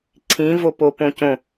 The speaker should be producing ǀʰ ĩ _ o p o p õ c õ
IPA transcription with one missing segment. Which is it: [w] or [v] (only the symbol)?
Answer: v